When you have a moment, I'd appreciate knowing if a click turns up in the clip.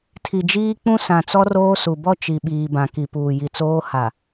no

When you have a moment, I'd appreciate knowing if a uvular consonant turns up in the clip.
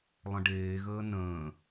no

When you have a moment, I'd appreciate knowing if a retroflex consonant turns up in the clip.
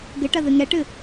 yes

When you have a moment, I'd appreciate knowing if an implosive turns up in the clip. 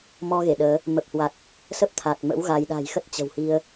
yes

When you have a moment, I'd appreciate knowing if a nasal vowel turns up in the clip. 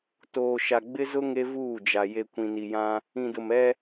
yes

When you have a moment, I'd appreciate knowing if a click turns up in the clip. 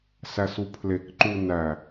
yes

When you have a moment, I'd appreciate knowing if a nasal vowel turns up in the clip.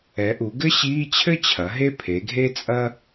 no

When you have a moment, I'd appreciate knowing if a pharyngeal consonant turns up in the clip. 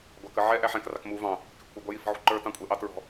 yes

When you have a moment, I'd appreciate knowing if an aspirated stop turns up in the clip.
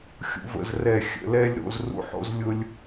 no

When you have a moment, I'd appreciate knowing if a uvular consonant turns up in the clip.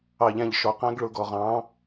yes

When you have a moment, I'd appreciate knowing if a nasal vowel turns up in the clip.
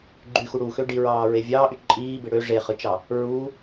no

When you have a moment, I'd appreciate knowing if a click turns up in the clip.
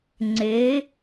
yes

